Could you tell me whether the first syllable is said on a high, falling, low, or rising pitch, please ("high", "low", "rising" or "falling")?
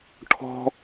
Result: high